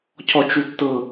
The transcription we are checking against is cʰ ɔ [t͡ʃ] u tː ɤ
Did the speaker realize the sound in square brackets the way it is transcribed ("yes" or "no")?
yes